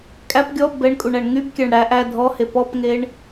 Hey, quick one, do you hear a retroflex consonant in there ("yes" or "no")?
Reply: yes